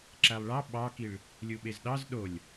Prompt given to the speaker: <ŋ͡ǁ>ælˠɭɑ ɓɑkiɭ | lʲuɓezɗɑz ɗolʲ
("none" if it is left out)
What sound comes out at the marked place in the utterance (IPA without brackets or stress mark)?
ǁ